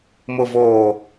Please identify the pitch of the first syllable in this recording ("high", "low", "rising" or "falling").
low